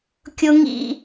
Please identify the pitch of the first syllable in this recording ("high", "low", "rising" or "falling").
high